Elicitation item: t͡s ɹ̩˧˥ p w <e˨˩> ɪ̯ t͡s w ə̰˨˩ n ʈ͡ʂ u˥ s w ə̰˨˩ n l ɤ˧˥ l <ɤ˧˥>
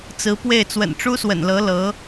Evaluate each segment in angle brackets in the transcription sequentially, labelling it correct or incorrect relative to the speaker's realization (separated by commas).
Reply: incorrect, correct